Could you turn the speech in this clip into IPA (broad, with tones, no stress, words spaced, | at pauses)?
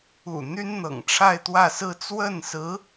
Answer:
ṵ˨˩ n̪y˥nn̪ɤ̰˨˩ŋʈ͡ʂʰa˥˧ɪ̯ t̪wä˥˧sɹ̩˥˧ t͡swə˥˩nsɹ̩˧˥